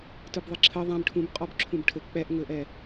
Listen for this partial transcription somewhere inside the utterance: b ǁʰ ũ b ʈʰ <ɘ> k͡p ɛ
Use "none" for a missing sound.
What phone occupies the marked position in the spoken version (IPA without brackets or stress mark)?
ɘ